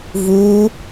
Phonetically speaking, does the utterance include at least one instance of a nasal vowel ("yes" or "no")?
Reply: no